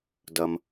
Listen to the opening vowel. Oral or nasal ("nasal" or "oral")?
oral